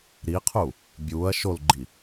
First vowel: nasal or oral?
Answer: oral